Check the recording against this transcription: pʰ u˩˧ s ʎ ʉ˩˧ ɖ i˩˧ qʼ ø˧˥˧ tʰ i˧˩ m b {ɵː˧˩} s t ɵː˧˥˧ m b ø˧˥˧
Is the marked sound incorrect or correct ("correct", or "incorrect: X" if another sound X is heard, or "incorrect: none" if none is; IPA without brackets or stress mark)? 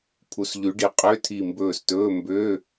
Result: correct